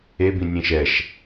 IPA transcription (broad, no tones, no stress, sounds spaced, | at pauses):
e b ĩ nʲ ẽ ʃ ɛ ʃ